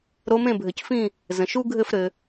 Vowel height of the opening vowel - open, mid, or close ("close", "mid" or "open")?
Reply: mid